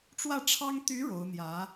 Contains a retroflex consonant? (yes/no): yes